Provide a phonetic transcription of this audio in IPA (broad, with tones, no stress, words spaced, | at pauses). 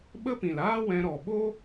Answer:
ɓə˦pĩ˨laː˦wɛ̃˧ ɾɔ˨ɓo˦